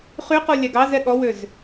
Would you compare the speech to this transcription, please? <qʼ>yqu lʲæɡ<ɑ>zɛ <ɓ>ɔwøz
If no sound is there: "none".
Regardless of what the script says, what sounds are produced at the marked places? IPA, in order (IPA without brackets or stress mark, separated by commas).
χ, ɑ, ɠ